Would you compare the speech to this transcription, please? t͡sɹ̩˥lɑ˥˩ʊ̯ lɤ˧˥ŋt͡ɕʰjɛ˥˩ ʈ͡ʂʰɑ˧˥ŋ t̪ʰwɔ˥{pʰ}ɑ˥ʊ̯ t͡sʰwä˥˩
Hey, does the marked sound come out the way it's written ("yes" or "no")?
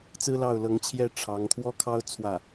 no